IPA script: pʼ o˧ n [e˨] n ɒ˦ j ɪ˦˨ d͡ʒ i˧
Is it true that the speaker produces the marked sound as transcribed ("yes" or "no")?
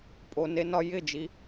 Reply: no